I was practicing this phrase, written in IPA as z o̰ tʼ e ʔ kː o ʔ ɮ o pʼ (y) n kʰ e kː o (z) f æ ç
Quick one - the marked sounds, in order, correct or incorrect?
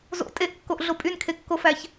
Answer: correct, incorrect: none

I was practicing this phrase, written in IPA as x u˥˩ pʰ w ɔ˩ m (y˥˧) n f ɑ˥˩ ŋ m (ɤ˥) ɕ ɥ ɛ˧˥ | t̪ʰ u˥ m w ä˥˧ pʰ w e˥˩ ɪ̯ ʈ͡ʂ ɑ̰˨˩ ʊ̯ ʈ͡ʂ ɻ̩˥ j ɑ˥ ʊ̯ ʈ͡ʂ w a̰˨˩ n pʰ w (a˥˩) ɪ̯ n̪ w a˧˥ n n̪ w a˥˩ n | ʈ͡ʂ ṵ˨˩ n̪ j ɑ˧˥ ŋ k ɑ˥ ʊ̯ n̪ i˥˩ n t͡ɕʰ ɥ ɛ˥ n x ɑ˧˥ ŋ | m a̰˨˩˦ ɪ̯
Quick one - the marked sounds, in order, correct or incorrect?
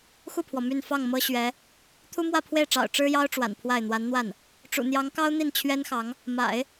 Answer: correct, correct, correct

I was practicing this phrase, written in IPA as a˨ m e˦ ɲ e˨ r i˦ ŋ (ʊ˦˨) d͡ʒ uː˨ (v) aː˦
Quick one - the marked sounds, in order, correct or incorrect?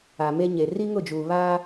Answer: correct, incorrect: β

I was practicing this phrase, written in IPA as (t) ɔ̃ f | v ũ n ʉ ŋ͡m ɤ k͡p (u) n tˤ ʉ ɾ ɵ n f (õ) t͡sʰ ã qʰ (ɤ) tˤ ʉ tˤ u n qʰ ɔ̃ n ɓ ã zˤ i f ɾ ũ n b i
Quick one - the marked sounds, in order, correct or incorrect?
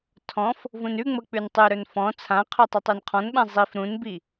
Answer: incorrect: tʰ, incorrect: ʉ, incorrect: ɔ̃, incorrect: ɵ

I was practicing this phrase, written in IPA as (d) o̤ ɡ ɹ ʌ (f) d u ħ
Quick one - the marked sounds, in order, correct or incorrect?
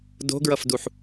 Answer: correct, correct

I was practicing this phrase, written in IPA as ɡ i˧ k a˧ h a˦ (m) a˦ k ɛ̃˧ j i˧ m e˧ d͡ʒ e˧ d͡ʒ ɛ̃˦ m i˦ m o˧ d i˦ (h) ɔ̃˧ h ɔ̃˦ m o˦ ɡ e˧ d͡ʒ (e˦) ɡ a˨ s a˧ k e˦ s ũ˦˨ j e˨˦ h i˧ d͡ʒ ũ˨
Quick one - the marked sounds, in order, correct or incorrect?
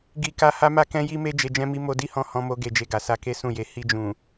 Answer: correct, correct, incorrect: e˧

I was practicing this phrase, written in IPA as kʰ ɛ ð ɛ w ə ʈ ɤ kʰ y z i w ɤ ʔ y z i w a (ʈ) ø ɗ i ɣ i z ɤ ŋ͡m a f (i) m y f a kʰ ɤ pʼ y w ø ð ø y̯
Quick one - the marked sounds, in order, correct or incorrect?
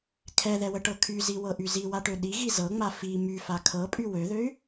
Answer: correct, correct

